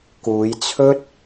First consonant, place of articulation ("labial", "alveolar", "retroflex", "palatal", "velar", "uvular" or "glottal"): velar